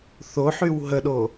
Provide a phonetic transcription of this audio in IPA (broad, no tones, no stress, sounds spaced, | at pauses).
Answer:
θ o ħ y w ɦ ə ɗ o